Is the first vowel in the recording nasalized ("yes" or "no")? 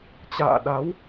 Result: no